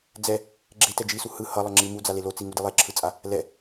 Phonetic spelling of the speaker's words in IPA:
d͡z ɛ | ɡ͡ǁ e t ɛ d͡ʒ i s u h ɯ h ʌ lˠ ʌ ŋ͡ǁ i m u d͡z a l e l o t͡s i ŋ u d i lˠ e ǁʰ ɯ t͡sʼ a | l ɛ

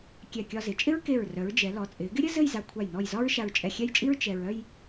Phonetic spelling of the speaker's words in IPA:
kʲ ɛ˧˩ kʲ ɒ˧ z ɪ˩˧ t͡ʃʼ ɪ˥ ɹ k e˧˩ ɹ r œ˩˧ ɹ d͡ʒ ɛ˩˧ l ɔ˩˧ t͡sʼ ɪː˩˧ ɡ ɪ˥ ɾʲ ɘ˥ z ɘ˥˧ j z a˧ kʷʰ a˧˩ j n ɔ˧˩ j z ɒ˥ ɹ ʃ a˧ ɹ t͡ʃʼ ɛ˧˩ xʲ ɛ˥˧ j t͡ʃʼ i˥ ɹ t͡ʃ ɛ˧ ɹ œ˥˧ j

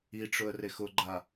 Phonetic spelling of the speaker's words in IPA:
i ʈ͡ʂ ʊ ə̯ r e x ʊ ɡ͡ǃ a

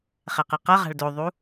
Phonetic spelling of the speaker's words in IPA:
χ ɛ q ɯ q ʌ ʁ a̤ ɭ d o ðˤ u

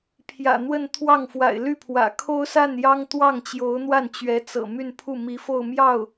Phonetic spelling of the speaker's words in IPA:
pʰ j ä̰˨˩ n̪ w ə˥˧ n t̪ʰ w ɑ˥˩ ŋ f w a̰˨˩ ɪ̯ l y˥˩ pʰ w ä̰˨˩ kʰ o˥ ʊ̯ s a˥˩ n j ɑ˥ ŋ t̪ w ɑ˥˩ ŋ t͡ɕ j o˧˥ ʊ̯ n̪ w a˥˩ n t͡ɕ ɥ ɛ˧˥ t͡s ɤ̰˨˩ m y˥˧ n pʰ u˥˩ m i˧˥ f o˥˧ ʊ̯ m j ɑ˥˩ ʊ̯

